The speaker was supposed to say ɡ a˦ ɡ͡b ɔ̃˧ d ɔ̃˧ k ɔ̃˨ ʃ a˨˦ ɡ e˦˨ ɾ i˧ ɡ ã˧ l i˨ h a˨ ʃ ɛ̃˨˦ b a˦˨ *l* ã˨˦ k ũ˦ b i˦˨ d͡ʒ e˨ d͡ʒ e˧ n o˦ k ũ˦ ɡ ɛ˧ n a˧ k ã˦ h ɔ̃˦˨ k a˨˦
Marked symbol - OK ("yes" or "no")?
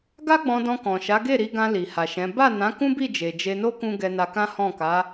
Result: no